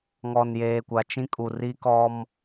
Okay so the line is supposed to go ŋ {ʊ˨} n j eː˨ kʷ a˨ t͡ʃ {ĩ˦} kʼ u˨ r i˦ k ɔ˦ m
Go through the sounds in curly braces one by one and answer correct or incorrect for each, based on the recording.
incorrect: ɔ˨, correct

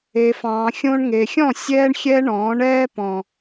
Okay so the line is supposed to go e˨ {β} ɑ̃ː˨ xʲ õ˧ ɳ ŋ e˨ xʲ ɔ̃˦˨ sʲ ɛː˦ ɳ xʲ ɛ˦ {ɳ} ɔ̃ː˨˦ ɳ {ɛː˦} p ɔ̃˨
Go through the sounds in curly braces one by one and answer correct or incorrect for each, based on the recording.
incorrect: f, correct, correct

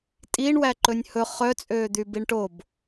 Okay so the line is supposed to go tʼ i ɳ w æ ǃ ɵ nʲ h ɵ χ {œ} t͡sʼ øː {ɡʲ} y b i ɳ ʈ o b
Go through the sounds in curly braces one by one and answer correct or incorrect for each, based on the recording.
correct, incorrect: d̪

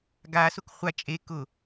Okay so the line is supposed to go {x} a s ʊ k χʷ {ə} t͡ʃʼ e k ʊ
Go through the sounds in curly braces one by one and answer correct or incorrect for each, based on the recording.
incorrect: ɡ, incorrect: a

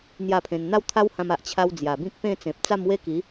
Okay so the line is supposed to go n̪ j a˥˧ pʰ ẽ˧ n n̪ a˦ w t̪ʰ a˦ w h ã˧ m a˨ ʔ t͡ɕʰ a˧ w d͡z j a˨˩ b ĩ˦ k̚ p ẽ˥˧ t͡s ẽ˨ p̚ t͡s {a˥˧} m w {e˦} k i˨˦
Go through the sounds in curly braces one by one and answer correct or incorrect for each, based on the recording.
correct, correct

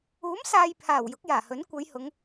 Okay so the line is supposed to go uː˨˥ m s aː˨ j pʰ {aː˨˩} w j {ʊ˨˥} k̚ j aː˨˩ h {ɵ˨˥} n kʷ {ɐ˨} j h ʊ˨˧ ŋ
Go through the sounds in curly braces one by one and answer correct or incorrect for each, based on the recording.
correct, correct, correct, incorrect: ɐ˨˧

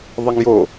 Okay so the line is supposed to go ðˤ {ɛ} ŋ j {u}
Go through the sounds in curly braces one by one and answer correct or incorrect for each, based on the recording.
correct, incorrect: o

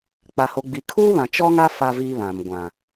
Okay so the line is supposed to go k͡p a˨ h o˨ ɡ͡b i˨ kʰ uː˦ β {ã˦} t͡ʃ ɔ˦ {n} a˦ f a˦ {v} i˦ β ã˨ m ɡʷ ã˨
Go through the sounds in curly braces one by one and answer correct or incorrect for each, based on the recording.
incorrect: ã˨, incorrect: ŋ, correct

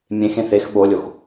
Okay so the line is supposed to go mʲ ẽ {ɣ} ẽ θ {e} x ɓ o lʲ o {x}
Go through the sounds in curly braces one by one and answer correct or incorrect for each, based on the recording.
incorrect: x, correct, correct

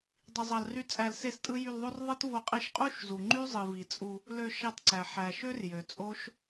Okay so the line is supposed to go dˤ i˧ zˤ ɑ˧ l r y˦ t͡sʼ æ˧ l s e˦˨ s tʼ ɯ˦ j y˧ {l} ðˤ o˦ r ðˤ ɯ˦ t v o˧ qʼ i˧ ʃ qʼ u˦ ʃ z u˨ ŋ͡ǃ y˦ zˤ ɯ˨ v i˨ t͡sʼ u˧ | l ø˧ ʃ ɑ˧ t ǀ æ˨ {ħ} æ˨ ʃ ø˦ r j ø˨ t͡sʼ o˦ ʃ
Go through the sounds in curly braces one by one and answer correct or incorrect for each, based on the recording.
correct, correct

